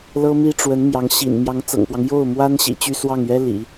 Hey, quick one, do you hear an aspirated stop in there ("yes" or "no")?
no